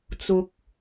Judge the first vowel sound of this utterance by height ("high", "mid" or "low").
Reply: high